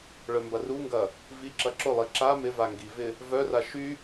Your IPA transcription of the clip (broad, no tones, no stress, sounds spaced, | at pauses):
ɭ œ m b ɐ r u ŋ ɡ ɐ | v i ǁ ɐ ǁ ʊ lˠ i ǁ a m ɪ v a ŋ ɡ i v ɪ | v œ r a ʃ y